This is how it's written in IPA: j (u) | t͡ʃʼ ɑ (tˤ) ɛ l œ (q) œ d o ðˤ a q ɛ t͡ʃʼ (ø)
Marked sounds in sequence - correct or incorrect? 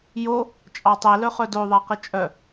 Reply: incorrect, correct, incorrect, incorrect

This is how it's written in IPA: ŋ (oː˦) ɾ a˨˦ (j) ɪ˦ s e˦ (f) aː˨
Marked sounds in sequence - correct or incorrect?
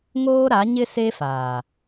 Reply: correct, incorrect, correct

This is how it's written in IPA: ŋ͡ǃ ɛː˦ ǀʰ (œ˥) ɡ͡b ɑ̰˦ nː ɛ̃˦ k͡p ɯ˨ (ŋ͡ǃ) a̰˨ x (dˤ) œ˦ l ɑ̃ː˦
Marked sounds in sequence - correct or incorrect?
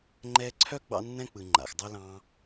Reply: correct, correct, correct

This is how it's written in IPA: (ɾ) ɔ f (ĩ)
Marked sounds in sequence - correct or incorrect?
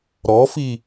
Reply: correct, incorrect

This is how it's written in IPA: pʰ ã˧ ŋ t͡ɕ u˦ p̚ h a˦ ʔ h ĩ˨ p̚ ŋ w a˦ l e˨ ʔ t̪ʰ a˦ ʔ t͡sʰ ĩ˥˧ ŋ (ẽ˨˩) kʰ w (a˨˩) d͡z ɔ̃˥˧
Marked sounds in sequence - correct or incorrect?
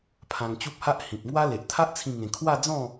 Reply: incorrect, incorrect

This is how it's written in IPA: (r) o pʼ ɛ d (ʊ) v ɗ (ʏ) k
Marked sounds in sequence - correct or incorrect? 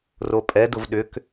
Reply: correct, correct, correct

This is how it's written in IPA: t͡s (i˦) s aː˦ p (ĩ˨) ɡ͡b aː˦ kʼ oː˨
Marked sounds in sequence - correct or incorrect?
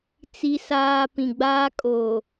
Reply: correct, correct

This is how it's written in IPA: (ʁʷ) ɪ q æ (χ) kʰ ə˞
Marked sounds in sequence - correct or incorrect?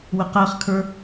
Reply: incorrect, correct

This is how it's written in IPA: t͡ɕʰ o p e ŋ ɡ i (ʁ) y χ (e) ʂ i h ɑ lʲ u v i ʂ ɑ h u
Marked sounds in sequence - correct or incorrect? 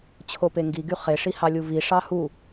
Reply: incorrect, correct

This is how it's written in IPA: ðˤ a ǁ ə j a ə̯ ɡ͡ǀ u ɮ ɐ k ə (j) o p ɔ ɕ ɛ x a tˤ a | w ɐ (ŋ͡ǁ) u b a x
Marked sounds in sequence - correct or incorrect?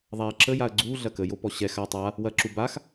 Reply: correct, incorrect

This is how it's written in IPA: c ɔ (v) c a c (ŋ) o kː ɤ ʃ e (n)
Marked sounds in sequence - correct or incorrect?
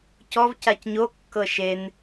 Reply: correct, incorrect, correct

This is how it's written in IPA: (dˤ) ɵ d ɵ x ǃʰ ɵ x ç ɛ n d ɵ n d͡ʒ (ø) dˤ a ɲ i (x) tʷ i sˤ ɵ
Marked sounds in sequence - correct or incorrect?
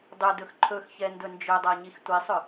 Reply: correct, incorrect, correct

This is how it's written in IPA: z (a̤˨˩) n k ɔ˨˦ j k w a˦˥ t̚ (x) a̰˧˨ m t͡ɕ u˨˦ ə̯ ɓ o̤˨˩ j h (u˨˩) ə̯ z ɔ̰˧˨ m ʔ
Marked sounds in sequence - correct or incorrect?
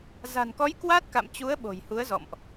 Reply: correct, incorrect, incorrect

